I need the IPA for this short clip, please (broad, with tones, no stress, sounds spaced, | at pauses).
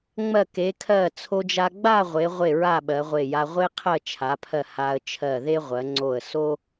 ŋ͡m ɜ˧˩ k e˩˧ kʰ ɜ˧˩ t͡sʰ o˧ d͡ʒ a˧ ɡ͡b a˥˧ ʁʷ e˩˧ ʁʷ e˧˩ ɹ a˧˩ ɓ ɜ˩˧ ʁʷ e˧˩ j a˧ ʁʷ e˥ qʰ ɜ˥˧ t͡ʃʰ a˩˧ pʰ ɜ˧˩ h a˧ ə̯ t͡ʃʰ ɜ˧˩ ð e˥ ʁʷ ɜ˩˧ ŋ͡ǀ o˧˩ ə̯ s o˥